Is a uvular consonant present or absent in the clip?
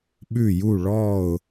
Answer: absent